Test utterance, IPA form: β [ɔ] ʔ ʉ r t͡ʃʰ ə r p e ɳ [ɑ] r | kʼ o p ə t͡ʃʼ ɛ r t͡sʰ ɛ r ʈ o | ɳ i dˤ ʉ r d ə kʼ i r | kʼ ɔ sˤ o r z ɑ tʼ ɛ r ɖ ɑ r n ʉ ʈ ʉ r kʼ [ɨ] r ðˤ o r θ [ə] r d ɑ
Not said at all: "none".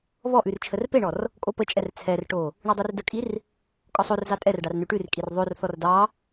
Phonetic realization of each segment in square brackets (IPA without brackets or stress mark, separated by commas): ɔ, ɔ, i, ɔ